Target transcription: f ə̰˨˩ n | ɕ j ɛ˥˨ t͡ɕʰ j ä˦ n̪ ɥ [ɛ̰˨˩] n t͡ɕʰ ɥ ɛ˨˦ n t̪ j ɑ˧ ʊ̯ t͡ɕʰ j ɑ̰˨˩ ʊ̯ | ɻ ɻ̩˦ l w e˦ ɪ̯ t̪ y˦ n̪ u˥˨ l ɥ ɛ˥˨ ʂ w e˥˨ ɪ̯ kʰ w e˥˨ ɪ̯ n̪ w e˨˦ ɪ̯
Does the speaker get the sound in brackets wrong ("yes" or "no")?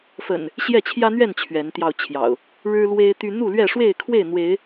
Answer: yes